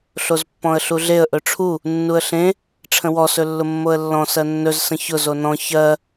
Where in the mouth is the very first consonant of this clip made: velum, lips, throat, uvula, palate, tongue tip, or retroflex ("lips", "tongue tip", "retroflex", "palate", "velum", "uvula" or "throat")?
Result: tongue tip